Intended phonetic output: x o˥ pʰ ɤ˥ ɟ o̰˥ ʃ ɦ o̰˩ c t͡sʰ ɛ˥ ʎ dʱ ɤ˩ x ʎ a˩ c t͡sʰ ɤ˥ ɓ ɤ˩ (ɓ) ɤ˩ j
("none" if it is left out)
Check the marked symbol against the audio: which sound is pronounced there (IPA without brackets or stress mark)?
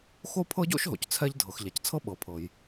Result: pʰ